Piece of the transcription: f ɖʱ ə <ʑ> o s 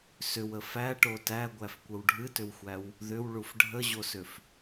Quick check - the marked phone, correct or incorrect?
correct